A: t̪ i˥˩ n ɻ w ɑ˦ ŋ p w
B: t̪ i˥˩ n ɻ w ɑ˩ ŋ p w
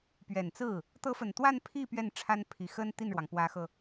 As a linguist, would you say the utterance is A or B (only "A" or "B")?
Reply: B